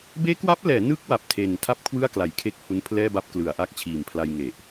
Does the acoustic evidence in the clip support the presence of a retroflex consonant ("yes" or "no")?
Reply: no